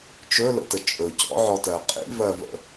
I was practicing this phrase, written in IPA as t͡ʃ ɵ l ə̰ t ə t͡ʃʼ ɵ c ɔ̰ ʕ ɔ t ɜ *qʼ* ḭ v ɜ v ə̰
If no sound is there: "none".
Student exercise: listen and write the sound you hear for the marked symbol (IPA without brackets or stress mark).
qʼ